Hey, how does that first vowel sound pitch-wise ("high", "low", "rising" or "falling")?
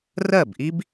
falling